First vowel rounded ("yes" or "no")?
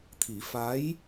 no